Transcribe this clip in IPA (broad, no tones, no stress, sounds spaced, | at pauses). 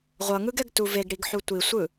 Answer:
ʁʷ ʌ ŋ ɯ ɡ ɛ ɡ t u v e ɡ ɽ i ɡ ħ u tʷ i sʷ ɯ